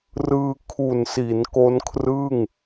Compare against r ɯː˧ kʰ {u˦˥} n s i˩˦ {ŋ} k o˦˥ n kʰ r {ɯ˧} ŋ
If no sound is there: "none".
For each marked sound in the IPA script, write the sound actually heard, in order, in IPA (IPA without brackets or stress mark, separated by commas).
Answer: u˨˩, n, ɯ˥˩